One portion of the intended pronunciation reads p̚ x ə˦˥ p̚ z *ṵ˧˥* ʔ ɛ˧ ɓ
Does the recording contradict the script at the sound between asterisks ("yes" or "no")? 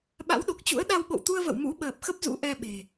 no